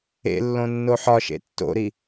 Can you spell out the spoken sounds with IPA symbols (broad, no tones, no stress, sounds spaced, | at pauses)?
ḛ lː õ nː o ħ ɒ ʃ ḛ tː o̰ ɾ i